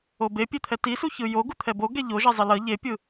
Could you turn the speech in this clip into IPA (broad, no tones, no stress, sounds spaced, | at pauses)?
o b e pʲ e t̪ʰ ɛ t i s u ç ɯ j o ɡ u t̪ʰ ɛ b o ɡ ɛ ʎ o ʒ ɛ zˤ i l ʌ ʎ e pʲ ɯ